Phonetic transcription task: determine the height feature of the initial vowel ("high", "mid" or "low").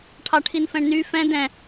low